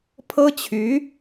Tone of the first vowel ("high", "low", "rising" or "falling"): high